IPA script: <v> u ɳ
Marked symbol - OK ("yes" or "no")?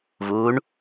yes